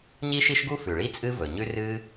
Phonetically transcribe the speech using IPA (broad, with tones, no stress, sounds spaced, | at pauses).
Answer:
ɲ i˥ ʃ i˥ ʃ ɡ u˥ f ʉ˩ ɭ i˥ t͡sʼ ɨ˥ v ɵ˩ ɲ ʉ˥ r ɨ˥